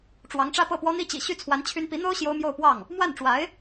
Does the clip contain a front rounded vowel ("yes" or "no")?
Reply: yes